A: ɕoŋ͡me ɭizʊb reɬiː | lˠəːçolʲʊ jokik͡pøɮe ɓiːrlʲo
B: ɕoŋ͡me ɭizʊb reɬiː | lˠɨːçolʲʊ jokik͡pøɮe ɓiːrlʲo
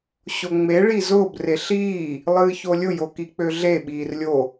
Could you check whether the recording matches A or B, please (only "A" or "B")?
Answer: B